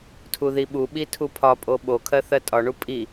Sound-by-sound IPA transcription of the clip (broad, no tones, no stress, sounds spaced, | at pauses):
tʰ u ð i ɓ u ɓ i tʰ u pʰ ɒ pʼ o ɓ o kʰ ɜ θ ɜ tʼ ɒ ɳ u pʼ i